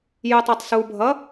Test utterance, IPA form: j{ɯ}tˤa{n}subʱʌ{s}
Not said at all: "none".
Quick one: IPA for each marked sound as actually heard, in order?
ɯ, tˤ, none

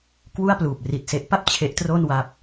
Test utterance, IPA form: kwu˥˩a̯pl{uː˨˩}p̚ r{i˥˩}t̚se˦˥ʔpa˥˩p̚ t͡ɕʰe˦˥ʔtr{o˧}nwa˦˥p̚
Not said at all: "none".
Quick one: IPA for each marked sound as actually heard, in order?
uː˨˩, i˨˩, o˥˩

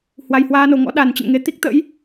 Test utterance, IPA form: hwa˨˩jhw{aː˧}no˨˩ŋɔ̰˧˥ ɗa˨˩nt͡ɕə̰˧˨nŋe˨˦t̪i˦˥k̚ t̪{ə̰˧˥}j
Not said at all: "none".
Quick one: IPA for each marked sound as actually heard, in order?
aː˧, ə̰˧˥

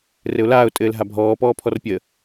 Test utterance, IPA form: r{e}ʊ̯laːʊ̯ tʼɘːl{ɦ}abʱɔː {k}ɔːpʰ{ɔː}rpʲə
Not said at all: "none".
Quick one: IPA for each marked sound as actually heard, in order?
ɘ, ɦ, p, ɔ

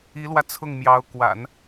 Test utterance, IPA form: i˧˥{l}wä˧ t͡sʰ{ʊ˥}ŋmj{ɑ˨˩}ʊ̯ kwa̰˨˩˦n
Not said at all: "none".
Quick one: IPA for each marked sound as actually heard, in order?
l, ʊ˥˩, ɑ˧˥

